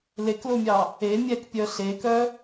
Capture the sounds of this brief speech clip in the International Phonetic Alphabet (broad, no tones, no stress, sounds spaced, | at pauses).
l e k l o mʲ ɑ | e mʲ ɛ k pʲ œ ɬ e k œ